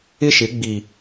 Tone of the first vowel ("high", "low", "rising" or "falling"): high